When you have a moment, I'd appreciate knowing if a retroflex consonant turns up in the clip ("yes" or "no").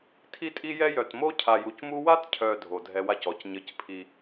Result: no